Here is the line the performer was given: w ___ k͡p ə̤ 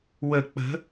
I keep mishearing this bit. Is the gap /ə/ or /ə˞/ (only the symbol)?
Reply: ə